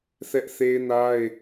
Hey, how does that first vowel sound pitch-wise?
high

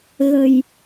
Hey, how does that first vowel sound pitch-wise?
low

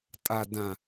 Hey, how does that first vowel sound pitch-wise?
low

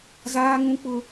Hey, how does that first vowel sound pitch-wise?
high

